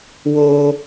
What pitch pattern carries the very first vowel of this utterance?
high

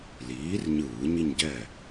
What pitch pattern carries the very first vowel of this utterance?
rising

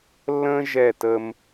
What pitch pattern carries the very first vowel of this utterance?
high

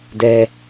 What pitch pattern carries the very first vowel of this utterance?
high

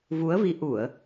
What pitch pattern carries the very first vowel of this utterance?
rising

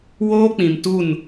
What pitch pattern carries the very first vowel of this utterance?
high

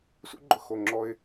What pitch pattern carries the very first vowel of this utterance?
high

